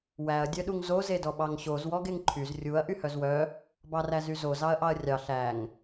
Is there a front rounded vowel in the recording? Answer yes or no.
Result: yes